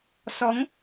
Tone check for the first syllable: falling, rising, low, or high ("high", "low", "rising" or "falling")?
rising